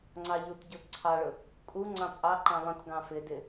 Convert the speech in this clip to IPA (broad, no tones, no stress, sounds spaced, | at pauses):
ŋ͡ǀ ɑ ʎ u t ɟ ʊ ǀʰ ɑ ɭ ʊ | kʼ u ŋ͡ǀ ɑ̃ pʼ ɑ ǃ ɑ̃ lˠ ə̃ t ɡ ɑ̃ f ɪ d ɪ